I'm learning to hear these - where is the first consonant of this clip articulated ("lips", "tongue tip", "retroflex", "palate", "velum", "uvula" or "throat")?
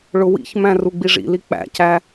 retroflex